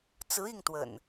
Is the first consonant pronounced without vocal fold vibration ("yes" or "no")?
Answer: yes